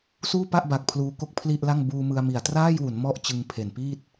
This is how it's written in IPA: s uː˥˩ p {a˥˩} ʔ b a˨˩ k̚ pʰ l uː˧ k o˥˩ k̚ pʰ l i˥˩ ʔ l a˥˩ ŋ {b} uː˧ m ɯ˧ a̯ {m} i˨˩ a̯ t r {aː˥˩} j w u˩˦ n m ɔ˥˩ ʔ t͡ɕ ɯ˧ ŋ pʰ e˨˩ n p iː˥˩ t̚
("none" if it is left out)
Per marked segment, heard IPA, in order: a˥˩, b, m, aː˥˩

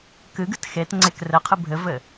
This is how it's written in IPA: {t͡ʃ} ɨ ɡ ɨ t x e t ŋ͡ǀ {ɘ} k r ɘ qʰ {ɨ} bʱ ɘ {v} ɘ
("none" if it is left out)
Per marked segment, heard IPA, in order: k, e, ɨ, v

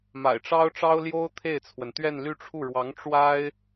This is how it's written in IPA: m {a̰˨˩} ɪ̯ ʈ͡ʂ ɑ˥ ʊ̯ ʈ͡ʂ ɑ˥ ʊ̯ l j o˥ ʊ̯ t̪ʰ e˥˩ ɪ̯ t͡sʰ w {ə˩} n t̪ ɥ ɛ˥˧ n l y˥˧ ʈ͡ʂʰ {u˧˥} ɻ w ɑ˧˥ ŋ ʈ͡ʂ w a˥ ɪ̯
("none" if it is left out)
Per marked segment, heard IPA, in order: a̰˨˩, ə˩, u˥˩

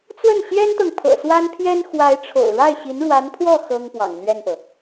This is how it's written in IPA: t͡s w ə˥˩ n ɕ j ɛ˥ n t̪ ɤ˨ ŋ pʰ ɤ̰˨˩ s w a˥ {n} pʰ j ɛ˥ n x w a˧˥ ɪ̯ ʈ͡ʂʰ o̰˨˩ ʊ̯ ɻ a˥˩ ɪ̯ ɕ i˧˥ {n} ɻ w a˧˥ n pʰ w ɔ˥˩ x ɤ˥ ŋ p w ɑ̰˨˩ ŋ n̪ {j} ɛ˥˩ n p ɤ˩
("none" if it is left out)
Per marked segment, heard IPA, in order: n, n, ɥ

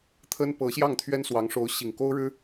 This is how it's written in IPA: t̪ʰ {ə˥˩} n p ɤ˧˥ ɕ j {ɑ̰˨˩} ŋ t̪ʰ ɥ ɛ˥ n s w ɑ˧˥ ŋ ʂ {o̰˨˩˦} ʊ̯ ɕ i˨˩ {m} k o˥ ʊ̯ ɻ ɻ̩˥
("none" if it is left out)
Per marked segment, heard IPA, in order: ə˥, ɑ˥˩, o˧˥, ŋ

